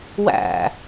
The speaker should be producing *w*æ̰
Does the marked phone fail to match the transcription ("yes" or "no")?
no